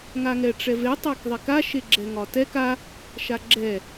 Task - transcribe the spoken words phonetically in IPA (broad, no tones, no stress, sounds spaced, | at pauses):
ŋ a ŋ ɛ ʈ͡ʂ ɛ v e tˤ a k ðˤ e k a ʃ e ɡ͡ǁ ɛ ŋ ɒ t ɛ k a | ʃ a ɡ͡ǁ ɛ